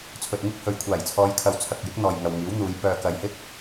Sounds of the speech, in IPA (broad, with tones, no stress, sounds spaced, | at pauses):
t͡sʰ ɵ˨ t̚ ŋ ɪ˥ k̚ h ɵ˨ ɥ kʷʰ aː˨˩ j t͡sʰ ɔː˨˧ j kʰ ɐ˨˧ w t͡sʰ ɐ˨ k̚ j ɪ˨˥ k̚ n̪ ɔː˨ j ŋ ɐ˨ w ŋ iː˨˥ w n̪ uː˨˧ j p œː˨ k ɐ˨ j h ɪ˥ k̚